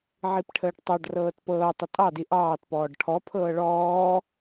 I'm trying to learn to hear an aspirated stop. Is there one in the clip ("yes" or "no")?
yes